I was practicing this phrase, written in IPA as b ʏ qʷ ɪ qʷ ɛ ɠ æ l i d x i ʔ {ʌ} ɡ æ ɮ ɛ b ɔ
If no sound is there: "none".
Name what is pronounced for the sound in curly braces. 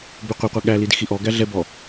ɔ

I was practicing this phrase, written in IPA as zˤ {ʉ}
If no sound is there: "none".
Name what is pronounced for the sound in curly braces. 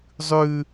ʉ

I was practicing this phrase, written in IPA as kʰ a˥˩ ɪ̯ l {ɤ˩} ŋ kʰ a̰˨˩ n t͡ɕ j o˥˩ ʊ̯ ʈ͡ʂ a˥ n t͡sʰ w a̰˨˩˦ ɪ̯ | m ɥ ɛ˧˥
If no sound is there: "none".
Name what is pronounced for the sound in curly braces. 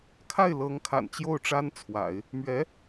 ɤ˧˥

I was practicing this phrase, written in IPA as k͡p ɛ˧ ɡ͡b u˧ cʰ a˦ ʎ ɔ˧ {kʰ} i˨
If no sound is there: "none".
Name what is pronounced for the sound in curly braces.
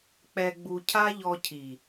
cʰ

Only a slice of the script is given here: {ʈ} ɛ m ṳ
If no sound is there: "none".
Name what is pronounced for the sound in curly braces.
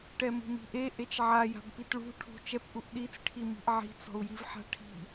ʈ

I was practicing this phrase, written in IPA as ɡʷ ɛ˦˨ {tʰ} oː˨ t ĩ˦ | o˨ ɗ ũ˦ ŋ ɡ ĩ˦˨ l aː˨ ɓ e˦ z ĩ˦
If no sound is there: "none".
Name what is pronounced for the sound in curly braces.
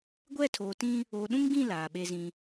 tʰ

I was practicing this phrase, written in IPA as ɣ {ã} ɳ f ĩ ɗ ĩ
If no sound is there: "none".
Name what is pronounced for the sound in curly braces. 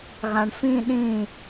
ã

